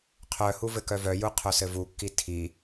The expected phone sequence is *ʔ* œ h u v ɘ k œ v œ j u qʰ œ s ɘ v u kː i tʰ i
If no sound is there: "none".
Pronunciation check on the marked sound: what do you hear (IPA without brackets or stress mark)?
qʰ